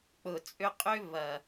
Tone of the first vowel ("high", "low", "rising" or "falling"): low